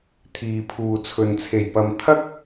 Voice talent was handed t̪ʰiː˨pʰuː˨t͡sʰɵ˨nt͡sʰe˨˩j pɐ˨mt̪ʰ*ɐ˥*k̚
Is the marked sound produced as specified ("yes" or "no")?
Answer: yes